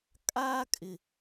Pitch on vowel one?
high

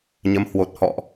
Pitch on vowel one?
rising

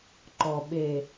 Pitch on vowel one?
low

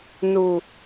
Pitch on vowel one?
low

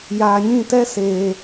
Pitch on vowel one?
low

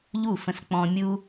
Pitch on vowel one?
falling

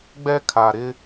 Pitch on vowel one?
high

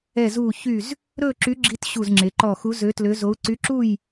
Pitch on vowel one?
falling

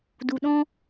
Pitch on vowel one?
low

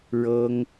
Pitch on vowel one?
high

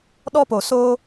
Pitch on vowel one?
high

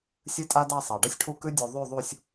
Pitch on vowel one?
high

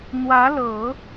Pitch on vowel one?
rising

